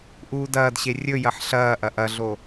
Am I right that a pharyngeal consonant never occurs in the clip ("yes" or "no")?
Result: no